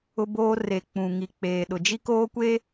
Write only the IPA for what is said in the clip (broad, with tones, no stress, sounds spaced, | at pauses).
ʊ˦ b oː˦ r e˨ k͡p ũ˨ ŋ i˨ k͡p eː˨ ɗ ʊ˨ d͡ʒ i˦ k oː˦ kʷ eː˦